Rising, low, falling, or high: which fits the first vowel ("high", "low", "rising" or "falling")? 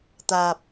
low